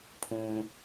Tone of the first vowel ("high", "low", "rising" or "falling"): high